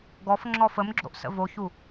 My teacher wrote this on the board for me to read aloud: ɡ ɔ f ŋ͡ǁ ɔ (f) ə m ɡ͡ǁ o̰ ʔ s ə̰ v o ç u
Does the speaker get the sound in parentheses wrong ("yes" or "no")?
no